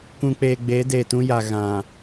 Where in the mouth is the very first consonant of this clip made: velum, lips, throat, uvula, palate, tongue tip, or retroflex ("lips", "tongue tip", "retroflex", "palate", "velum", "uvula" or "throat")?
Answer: velum